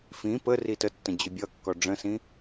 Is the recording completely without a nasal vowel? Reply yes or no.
no